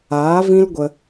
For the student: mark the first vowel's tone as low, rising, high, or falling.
rising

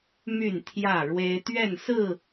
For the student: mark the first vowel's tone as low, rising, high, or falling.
falling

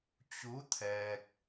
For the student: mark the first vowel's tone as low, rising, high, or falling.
rising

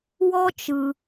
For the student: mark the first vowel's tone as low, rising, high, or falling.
high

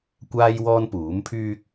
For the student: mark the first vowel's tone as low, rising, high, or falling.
high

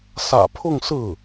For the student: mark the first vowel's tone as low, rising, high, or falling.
low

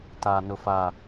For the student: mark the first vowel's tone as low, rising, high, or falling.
low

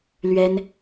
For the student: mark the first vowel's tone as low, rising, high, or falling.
high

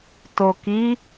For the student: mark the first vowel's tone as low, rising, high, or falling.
low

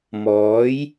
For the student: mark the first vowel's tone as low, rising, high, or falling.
rising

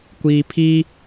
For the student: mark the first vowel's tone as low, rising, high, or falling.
low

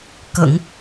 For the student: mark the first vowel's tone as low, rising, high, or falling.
low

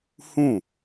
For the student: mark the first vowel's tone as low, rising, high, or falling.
falling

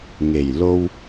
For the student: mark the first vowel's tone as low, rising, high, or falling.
low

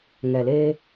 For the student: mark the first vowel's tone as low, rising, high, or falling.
low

